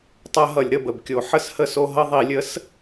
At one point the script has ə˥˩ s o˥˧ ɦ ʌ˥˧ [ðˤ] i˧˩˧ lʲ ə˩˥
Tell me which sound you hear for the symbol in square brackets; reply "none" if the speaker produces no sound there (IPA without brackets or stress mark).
ðˤ